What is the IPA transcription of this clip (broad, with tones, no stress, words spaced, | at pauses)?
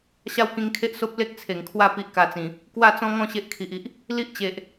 ɕa˦wkĩ˧ŋkʰe˦ʔso˦p̚ le˦k̚t͡sʰe˨˩ŋkʰwa˦ pi˦ʔka˧t͡sĩ˨˩ | kwa˥˧t͡sɔ̃˦ŋɔ̃˥˧ ɕe˦ʔkʰi˨ʔi˨ʔ | li˦ʔt͡ɕe˨ʔ